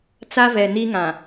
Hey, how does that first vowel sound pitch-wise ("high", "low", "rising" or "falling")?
high